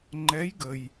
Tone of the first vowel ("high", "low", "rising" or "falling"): rising